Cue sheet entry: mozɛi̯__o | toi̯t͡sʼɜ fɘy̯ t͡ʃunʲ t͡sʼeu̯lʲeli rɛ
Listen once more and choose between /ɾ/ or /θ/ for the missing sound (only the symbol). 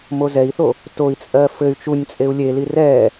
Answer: θ